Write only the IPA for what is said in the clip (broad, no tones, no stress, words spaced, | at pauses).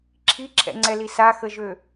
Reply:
ǁʰiǁʰɛ̰ŋ͡ǀɛli saxəʒø